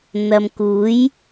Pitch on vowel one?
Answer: low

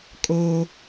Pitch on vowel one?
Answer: low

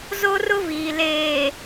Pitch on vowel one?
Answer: high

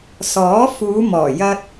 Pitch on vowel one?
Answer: rising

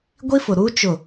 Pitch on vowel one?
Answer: high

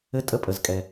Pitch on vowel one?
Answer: high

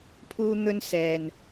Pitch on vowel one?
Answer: high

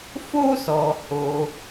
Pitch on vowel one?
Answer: high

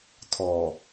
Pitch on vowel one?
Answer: low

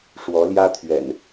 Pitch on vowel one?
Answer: rising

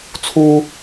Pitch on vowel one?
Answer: high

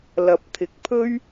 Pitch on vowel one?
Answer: rising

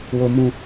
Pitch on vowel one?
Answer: high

